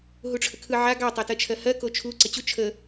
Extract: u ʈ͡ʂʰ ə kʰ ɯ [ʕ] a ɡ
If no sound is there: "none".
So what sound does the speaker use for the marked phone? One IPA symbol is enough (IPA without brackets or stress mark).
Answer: ʕ